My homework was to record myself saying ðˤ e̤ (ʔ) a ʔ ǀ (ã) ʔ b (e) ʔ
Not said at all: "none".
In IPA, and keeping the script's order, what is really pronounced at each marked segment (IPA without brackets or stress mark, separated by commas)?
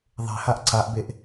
h, a, e